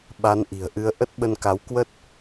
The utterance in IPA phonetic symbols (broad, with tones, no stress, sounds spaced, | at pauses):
ɓ a˨˦ n ʔ i̤˨˩ ə̯ ʔ ɨ˨˦ ə̯ ʔ ə˦˥ t̚ ɓ ə˧ n k a˨˦ w k w ə˦˥ t̚